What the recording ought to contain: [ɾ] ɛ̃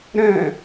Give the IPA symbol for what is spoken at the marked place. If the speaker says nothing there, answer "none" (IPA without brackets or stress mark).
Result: ɾ